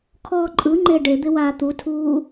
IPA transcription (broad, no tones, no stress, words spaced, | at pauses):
kʰɔːǃʼɯŋ͡ǃe ɖed̪ɪ waːt̪utʰuː